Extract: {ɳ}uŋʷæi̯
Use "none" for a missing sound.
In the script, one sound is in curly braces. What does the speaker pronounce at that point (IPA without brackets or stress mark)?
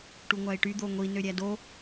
ʈ